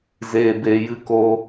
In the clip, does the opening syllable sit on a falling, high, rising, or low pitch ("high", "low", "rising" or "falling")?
low